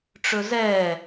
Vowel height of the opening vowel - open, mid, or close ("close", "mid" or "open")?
mid